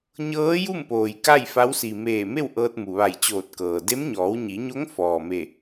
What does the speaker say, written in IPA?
ɲ ɤː˧˥ j u˥˨ m p oː˩ j k a˥˨ j f a˧˥ w s i˩ m eː˧˩ m e˥˨ w ʔ ɤː˧ t̚ m u˩ ʋ a˧˩ j t͡ɕ oː˧˩ t̚ k ɤː˩ d e˧˥ m ɲ ɔː˩˧ w ɲ i˩˧ ɲ o˧˥ ŋ f ɔː˩ m e˧˩

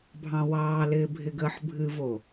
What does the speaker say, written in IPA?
bʱ ɑ̃ w ɑː l ɪː bʱ ɪ ɡ əː ħ bʱ ɨ v o

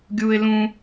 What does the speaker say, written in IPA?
ɡʲ uː˦ ɪ̯ l ũ˦

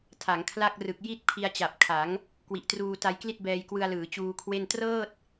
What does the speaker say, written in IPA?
tʰ a˩˦ ŋ kʰ l a˥˩ k̚ r ɯ˨˩ k̚ j i˥˩ t̚ pʰ i˧ a̯ t͡ɕ a˨˩ p̚ kʰ a˩˦ ŋ | k w i˨˩ ʔ t r uː˧ t a˧ j k l i˥˩ t̚ b ɛː˧ j k w ɯ˧ a̯ l ɯː˩˦ t͡ɕ uː˧ kʰ w e˥˩ n t r ɤː˥˩ t̚

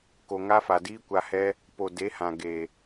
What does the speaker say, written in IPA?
k o˨ ŋ a˦ f a˨ d iː˦ kʷ a˧ h ɛ˦ | p o˨ d e˨˦ h ã˨ ɡ e˨

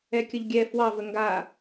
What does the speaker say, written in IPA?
ɛ kʲ ə ʎ ɡʲ ɛ f w ɑ v ə ŋ ɡ a

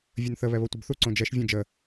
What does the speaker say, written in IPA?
vʲ ə n θ ə β ɛ β o tʷ ə b θ u ǀ õ d͡ʒ ɛ ʃ vʲ ũ d͡ʒ ə

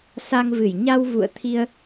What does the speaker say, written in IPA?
s a˧ ŋ v ɨ˧˩ j ɲ a˧ w v ṵ˧˨ ə̯ t̪ʰ i˧ ə̯

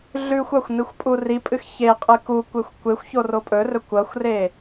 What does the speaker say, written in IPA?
ɮ ʉ xʷ a xʷ n ɨ xʷ pʼ u r i pʼ ɨ x ç e qʼ ɨ k u kʷ e xʷ kʷ e xʷ ç o r o pʼ ɵ r ɵ kʷ ɐ xʷ r e

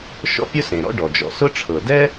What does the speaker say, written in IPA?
ʃ ɔ̰˥ pʲ ʊ˥ s ẽ˩ ɾ ɔ̰˥ ɖ ɔ˩ d͡ʒ ɔ̰˩ s ʊ˥ ʈ͡ʂʰ ɤ˩ d ɛ˥

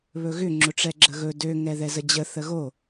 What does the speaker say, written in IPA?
β ɵ ɣ ʏ ŋ͡ǁ ʊ ʈ͡ʂ ɛ ɡ͡ǁ ə ɣ ɵ d ø ŋ ɛ ð ɛ z ə d͡ʑ ə θ ə ɣ o

